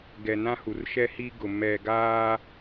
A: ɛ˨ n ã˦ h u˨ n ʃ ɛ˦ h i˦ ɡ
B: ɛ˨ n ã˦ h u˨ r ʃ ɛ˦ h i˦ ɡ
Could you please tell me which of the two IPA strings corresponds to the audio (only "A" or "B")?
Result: B